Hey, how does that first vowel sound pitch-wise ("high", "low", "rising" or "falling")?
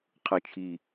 low